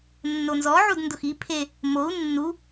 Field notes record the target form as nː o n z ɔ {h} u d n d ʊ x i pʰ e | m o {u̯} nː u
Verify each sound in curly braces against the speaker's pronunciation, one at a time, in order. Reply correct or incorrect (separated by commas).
incorrect, correct